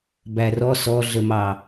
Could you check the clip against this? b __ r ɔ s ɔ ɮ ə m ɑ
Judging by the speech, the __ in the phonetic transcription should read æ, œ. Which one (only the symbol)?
æ